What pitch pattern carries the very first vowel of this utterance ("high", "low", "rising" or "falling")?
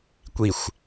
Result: low